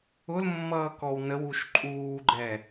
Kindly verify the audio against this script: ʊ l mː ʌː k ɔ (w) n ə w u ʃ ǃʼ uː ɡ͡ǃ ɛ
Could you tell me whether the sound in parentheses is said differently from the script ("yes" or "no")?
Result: no